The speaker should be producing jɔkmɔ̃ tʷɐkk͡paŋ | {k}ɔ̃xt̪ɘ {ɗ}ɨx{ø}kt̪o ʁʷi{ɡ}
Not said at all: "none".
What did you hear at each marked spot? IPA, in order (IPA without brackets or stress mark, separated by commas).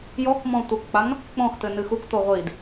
k͡p, n, u, d